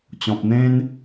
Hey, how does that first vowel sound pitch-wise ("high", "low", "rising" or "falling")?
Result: low